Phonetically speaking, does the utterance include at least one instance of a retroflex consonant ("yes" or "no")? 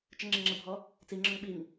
no